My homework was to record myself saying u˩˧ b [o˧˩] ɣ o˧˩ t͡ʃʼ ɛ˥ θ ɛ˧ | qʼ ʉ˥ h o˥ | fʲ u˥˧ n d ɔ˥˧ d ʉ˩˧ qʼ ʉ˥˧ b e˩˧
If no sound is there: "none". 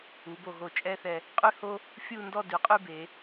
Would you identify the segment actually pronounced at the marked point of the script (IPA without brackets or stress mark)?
o˧˩